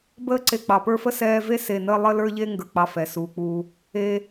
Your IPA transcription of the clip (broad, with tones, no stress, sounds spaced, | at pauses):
b əː˦ ǀ e˨ k͡p ɑ˩ p ə˞˦ f ə˥ s ɛː˦ v e˥ s e˨ n əː˦ lˠ ə˦ l ə˞˦ ʎ e˦ ŋ ɡ ə˞˨ k͡p ɑ˨ f ɛ˩ s uː˩ k͡p u˨ | e˨